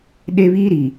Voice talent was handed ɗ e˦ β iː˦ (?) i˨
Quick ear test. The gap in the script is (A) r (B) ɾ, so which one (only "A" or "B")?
B